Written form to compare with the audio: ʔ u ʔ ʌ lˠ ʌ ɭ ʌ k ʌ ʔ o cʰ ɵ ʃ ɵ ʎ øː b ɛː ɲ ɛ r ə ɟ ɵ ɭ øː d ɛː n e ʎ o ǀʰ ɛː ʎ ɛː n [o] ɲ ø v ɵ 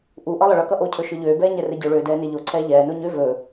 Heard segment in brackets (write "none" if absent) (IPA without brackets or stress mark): o